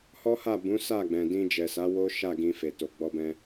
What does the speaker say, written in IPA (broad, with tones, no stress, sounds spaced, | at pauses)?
h ɔ˦ h a˦˨ b ũ˨˦ s a˦˨ ɡ͡b ɛ̃˨ d ĩ˧ d͡ʒ ɛ˨ s a˨˦ w o˦ ʃ a˦˨ ɡ ĩ˧ f e˨ t o˨ ɡ͡b ɔ˧ b ɛ̃˧